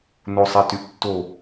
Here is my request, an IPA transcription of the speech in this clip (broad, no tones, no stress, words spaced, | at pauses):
nosˤɛtyʔtːo